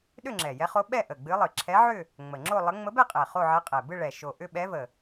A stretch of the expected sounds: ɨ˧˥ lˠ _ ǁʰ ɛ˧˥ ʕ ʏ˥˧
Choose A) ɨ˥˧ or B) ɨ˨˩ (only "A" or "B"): B